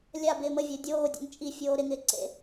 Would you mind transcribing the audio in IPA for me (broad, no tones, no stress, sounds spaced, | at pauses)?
lʲ a b ɪː m ə vʲ əː dʲ oː dʲ o̰ ŋ t͡ʃʼ i fʲ oː ɾ ɪ ŋ ɪː ǀ ḛ